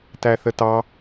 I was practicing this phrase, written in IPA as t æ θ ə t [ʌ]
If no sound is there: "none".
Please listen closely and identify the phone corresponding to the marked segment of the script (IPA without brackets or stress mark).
ɑ